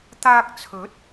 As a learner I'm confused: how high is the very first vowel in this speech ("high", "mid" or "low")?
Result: low